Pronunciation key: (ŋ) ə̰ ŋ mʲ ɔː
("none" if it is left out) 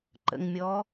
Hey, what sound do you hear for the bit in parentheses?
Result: ǃ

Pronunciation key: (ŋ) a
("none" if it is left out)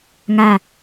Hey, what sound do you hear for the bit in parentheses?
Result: ŋ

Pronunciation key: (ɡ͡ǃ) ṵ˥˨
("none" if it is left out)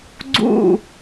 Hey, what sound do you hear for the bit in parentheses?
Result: ɡ͡ǀ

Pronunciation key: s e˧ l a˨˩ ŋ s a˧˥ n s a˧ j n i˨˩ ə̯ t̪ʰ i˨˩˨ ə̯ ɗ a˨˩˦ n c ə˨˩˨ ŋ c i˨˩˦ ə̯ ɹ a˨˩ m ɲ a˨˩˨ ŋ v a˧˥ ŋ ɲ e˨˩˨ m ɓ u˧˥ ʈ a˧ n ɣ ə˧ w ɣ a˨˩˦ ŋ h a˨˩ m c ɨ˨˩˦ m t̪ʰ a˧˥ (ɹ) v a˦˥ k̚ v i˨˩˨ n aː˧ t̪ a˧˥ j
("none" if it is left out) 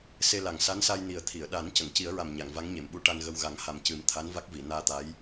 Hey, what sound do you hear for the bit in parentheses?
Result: n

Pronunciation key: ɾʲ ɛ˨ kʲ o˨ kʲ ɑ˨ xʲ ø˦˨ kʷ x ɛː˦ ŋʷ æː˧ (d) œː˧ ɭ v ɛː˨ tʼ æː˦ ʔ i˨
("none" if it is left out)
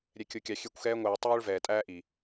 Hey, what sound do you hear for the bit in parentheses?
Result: tˤ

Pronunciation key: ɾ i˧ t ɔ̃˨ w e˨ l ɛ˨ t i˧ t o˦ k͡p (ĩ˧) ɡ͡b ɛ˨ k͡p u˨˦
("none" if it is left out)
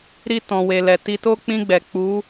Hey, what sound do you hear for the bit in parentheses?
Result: ĩ˧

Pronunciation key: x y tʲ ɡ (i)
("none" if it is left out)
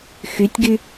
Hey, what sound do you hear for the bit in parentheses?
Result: y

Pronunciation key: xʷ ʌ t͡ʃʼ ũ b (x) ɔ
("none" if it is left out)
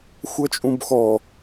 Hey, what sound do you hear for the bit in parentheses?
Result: x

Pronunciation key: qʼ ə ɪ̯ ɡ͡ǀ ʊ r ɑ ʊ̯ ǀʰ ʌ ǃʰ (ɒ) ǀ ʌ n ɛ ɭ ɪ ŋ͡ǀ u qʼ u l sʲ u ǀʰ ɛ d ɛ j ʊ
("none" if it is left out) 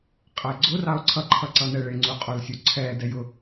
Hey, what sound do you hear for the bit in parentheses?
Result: ʌ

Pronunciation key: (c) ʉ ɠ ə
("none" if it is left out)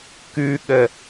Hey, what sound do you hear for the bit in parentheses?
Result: k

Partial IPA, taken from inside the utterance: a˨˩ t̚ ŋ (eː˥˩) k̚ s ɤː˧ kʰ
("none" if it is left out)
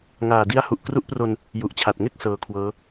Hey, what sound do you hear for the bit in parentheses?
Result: e˥˩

